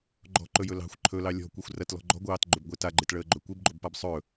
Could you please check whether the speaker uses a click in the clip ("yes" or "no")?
yes